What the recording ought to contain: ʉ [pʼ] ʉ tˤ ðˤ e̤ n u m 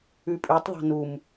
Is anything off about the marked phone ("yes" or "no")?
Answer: no